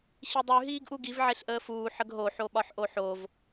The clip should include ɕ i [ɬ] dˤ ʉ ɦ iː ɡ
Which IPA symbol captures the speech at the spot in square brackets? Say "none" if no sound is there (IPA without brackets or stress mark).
none